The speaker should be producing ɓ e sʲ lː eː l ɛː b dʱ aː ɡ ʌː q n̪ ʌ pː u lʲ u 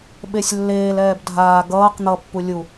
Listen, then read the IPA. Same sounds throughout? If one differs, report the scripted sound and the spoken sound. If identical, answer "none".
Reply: none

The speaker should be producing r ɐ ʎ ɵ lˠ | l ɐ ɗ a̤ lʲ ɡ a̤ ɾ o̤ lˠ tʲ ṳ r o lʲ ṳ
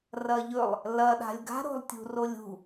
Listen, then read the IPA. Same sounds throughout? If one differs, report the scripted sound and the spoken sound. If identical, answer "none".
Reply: none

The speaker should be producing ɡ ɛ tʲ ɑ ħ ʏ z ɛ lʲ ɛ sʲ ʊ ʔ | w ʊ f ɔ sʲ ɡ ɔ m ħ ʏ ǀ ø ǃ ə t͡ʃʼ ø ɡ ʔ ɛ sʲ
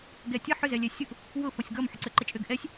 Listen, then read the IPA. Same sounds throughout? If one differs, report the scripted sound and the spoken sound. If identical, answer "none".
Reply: ɑ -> ə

